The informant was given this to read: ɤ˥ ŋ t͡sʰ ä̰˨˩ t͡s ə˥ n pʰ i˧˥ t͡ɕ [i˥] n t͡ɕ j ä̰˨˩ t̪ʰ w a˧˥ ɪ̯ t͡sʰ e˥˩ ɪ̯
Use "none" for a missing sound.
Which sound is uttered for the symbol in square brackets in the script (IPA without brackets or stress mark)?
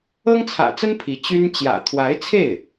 y˥